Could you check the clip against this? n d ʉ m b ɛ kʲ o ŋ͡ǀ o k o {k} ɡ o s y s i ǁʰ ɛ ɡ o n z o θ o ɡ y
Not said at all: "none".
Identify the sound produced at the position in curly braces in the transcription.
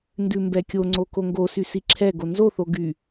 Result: ŋ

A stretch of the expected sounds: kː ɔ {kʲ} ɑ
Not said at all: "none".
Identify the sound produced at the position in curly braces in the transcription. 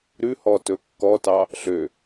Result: t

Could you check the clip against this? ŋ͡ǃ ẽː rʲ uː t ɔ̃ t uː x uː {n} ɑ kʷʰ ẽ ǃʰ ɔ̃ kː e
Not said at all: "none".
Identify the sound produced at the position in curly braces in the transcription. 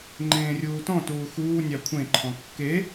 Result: nʲ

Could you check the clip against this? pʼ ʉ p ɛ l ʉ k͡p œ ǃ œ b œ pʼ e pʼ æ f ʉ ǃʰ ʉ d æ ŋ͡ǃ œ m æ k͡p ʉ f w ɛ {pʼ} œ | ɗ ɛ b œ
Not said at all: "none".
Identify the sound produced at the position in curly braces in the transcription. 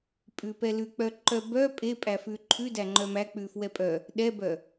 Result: pʼ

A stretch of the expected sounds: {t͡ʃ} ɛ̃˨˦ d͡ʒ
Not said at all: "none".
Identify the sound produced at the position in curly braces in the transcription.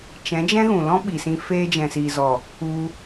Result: t͡ʃ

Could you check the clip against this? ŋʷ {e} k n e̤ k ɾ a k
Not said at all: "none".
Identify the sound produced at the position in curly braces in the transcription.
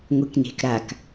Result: e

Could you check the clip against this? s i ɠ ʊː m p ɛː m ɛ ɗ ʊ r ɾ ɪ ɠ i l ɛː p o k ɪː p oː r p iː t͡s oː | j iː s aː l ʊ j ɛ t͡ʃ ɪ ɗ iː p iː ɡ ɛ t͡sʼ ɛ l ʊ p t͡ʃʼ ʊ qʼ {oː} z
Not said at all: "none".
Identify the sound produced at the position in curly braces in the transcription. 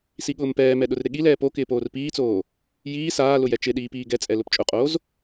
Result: oː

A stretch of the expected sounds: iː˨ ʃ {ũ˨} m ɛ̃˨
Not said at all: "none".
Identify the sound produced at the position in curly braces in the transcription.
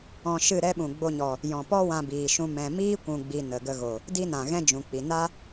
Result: ũ˧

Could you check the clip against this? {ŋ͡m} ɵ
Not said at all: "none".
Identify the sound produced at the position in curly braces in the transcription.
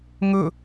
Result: ŋ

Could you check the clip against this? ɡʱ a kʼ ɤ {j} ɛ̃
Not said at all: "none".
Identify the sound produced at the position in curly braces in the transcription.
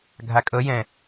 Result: j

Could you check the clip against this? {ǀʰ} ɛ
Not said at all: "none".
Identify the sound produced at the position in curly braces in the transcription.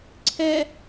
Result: ǀʰ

